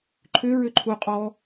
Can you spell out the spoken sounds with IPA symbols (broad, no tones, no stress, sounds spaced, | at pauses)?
ǃʰ ʏ ɹ ʏ ǃʰ u qʼ ɔ